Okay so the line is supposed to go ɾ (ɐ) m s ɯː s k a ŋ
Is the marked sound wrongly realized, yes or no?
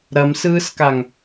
no